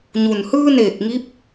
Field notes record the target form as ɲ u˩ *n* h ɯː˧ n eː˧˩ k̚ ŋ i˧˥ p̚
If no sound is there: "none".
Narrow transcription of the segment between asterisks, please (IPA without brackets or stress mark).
n